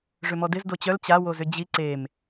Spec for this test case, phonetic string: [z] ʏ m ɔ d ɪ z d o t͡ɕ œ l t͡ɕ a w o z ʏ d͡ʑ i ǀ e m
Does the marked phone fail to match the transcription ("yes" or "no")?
yes